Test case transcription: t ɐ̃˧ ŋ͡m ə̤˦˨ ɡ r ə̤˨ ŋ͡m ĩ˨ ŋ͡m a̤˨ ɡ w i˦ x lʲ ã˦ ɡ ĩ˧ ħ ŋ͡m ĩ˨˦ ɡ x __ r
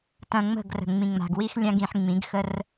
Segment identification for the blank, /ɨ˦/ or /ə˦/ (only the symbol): ə˦